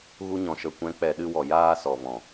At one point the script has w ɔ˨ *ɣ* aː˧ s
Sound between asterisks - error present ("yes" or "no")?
yes